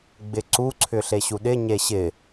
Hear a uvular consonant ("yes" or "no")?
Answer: no